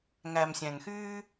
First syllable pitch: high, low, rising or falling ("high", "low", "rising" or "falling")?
low